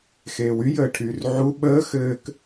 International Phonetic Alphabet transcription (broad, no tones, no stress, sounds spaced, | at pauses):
x eː w y j əː ʈʰ yː r ʕ u ɓ əː x ɘː k